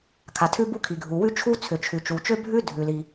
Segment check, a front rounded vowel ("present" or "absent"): present